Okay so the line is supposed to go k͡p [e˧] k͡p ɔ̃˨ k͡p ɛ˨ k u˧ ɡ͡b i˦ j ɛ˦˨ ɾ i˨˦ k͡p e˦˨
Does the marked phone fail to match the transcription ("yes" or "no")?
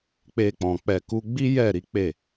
no